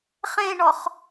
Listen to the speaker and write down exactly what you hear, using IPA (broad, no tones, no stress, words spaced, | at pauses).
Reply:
χẽɳɔχ